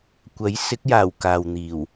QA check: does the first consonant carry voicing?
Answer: no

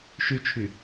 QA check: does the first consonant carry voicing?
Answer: no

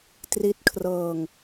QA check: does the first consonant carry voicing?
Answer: no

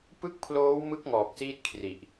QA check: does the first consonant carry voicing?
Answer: no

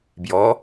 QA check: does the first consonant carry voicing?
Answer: yes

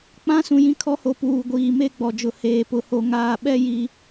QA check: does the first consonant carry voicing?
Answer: no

